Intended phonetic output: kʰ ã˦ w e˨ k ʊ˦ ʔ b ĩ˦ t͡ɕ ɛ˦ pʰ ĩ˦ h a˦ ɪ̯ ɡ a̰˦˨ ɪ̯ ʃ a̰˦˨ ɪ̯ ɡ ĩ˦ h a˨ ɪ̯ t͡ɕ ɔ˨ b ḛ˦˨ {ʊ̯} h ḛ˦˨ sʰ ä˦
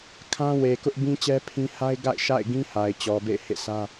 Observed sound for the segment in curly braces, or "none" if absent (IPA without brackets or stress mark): ɪ̯